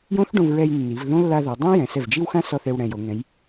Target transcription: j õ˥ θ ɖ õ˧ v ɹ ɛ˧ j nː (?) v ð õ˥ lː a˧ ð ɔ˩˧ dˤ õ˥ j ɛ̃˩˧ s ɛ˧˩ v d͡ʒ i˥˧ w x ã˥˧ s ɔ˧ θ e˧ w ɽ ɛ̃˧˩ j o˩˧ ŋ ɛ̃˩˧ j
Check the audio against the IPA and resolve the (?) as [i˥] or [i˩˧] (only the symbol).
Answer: i˩˧